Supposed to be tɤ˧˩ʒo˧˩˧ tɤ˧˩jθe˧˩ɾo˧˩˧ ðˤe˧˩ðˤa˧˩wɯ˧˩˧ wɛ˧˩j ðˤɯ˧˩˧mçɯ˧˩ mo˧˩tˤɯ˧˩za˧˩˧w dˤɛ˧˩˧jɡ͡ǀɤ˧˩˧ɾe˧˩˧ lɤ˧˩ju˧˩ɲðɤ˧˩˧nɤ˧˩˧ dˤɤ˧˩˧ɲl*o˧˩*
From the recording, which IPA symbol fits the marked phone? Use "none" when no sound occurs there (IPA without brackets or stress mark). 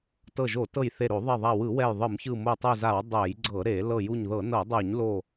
o˧˩